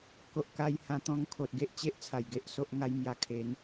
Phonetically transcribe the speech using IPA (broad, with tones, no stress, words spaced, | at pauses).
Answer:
ko˨ʔka˧jhã˧ t̪ɔ̃˧ŋkʰo˨t̚ ɡe˦ʔt͡ɕe˦ʔ t͡sʰa˨˩j ɡe˦ʔso˦ʔŋa˦jmja˧ kʰe˨˦n